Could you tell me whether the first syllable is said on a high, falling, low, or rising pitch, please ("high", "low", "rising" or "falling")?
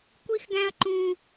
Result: high